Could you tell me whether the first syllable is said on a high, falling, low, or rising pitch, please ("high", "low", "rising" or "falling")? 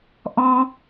high